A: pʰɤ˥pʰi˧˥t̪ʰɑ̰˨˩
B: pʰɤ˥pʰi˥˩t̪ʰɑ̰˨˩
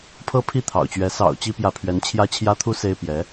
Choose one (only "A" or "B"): B